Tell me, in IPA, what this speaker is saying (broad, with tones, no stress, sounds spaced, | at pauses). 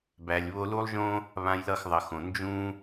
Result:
b æ˨ lʲ β o˧ l u˦ lˠ ʒ õ˦ | β ã˧ j l ʌ˦˨ x ðˤ ʌ˨ x õ˨ n d͡ʒ ũ˦